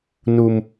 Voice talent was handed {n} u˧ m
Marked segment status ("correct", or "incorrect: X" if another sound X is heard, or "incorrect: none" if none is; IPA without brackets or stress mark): correct